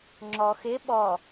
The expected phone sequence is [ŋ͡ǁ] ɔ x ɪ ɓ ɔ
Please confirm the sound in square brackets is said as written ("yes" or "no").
yes